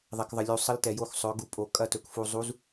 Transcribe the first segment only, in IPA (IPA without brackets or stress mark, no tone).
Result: ðˤ